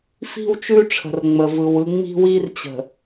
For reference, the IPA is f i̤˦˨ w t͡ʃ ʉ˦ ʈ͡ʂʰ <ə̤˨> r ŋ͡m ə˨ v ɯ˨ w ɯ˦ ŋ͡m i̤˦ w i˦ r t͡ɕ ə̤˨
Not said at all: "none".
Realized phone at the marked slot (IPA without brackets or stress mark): ə̤˨